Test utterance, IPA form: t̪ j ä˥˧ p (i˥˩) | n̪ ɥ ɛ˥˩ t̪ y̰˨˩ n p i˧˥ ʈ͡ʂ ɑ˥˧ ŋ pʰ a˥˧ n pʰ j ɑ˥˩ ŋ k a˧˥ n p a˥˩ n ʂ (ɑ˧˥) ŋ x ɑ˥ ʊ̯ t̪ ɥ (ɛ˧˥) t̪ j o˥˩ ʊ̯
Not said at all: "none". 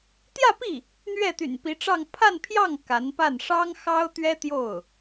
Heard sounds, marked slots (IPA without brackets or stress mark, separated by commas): i˥˩, ɑ˥, ɛ˥